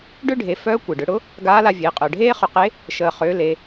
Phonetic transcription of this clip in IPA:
ɖ ʏː˥ ɖʱ e˩˧ f œː˧˥ kʷ e˩ ɖ ʏ˩˧ ɽ ʊ˧˥ | ɡ aː˧˥ l a˧ vʲ eː˩˧ qʼ œ˩ ɖʱ eː˥ χ ʏ˧ q e˧˥ | ʃ əː˩ χ ʏː˩˧ l e˩˧

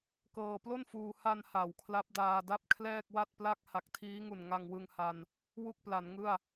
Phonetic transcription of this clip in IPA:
k ɤː˧ p l o˥˩ n f uː˧ h a˧ n h a˨˩ w kʰ l a˦˥ p̚ d aː˧ d a˥˩ p̚ kʰ l ɛː˥˩ k̚ w a˥˩ t̚ p l a˥˩ k̚ h a˨˩ k̚ tʰ iː˦˥ ŋ u˨˩ n ŋ a˧ ŋ w ɯ˧ ŋ h a˧ n | w u˥˩ k̚ p l a˩˦ n ŋ ɯ˥˩ a̯

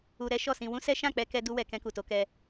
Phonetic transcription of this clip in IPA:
u˧ ɾ ɛ˦ ʃ ɔ˦˨ s ĩ˧ w ũ˦ s ɛ˦ ʃ ã˦˨ k͡p ɛ˧ k ɛ˧ d u˦ w ɛ˧ k ɛ̃˧ k u˨ t o˨˦ k ɛ˧

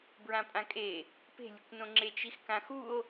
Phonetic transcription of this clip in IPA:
b ɹ ã pʼ ã kʼ e | p e̤ lʲ ɯ kʷ n õ ŋ͡ǁ e t͡ʃ i x k ã x u o̯

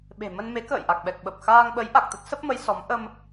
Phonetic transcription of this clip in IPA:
ɓ e̤˨˩ m ə˧ n m e˨˦ k ə̰ː˧˨ j ʔ a˨˩ k̚ ɓ ɛ˨˩ k̚ ɓ ə˨˩ p̚ x aː˧ ŋ ɓ ə˨˦ j ʔ a˨˩ k̚ t̪ ə˦˥ t̚ s ə˦˥ p̚ m ə˨˦ j s ɔ˨˦ m ʔ ə˧ m

